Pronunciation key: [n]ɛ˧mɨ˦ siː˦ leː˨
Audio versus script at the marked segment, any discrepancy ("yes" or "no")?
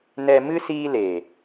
no